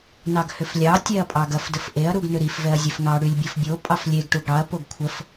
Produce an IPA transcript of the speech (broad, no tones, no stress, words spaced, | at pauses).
nɑɡhʏflʲɑ tʲɛɐ̯pʼɑɡɐf dəfʔeɐ̯ ɾuɡnʏɾif vɛɐ̯zʲɛfŋɑ ɽylʲbʲɐfbʲo pʼɑflʲeɡ ʈuɡɽɑɐ̯ poɡkʷʰəf